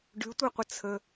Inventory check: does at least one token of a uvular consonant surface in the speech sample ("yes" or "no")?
yes